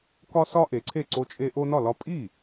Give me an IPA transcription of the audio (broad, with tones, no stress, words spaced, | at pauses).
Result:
kɒ˦sɒ˦ ʔe˩˥ǀʰe˥˩ǀo˦t͡ʃʼe˦ ʔo˦nɒ˥˩lɒ˦ pʼi˥˩